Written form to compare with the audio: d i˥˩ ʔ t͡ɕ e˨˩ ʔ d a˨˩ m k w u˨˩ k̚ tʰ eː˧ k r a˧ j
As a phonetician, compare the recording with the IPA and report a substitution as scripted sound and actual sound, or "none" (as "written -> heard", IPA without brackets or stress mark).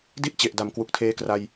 none